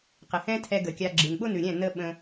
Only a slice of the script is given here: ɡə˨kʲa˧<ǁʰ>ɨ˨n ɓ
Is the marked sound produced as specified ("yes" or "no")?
no